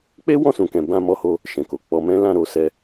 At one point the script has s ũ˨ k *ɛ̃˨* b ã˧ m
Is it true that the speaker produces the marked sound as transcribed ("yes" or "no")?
yes